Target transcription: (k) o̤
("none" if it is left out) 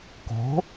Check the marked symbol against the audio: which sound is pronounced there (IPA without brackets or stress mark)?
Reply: k